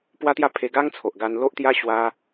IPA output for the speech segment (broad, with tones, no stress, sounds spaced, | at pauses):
p w a˦ t̪ j a˥˧ pʰ e˧ ɡ a˦ ŋ t͡sʰ o˨ ʔ ɡ a˧ n l o˦ ʔ t̪ j a˦ ɕ w a˦